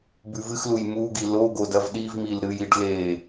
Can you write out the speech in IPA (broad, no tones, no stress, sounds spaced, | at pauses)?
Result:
b ʉ v ɨ x l u j m u ɡ i l o ɡ o d ɐ v ɗ i v m i l ɾ ɨ j i ɖ l e